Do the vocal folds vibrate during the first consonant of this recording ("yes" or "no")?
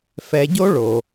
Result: no